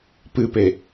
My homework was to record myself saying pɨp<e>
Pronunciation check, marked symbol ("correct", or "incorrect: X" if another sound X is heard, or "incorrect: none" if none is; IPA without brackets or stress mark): correct